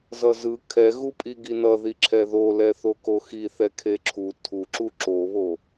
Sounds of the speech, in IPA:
z ʌ z ɯ kʰ ɛ ɣ u pʼ i ɡ i n ʌ ð i ǁʰ ɛ ð o l ɛ θ o k o x i θ ɛ kʰ e ǁʰ u tʰ u ǁ u ǁ o β o

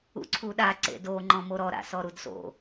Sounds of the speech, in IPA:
ṵ ǀʰ u ɗ a ǀ ḛ d o ŋ͡ǃ ɔ̃ m o ɾ ɔ ɾ a̰ s ɔ ɾ u d s o̰

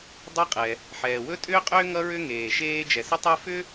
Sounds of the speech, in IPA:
dˤ ɛ˥ qʼ ɛ˩ | ħ ɛː˩ w ɵ˥ tʼ ʏː˥ qʼ ʏː˥ ŋ ʌ˥ ɹ ʏ˥ ŋ eː˩ ʃ eː˥ d͡ʒ ɛ˩ s ə˥ tˤ e˥ f ʏ˥

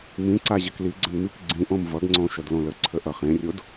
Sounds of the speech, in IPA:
m ĩ ǀ a ʑ ə k l i ɡ͡ǀ ə n m i k ɡ͡ǀ ĩ ʔ õ m v ʌ ɡ ŋ͡ǀ õ ʃ ʌ d l õ l ə ǀʰ ə ʔ ʌ χ ẽ rʲ o d

